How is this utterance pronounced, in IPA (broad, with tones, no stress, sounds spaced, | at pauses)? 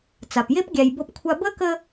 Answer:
t͡s a˩ p j e˦ p ɡʲ æ˨ j b ɤ˦ p kʷʰ a˦ b ə˥ k ə˦